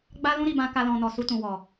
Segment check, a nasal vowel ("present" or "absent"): present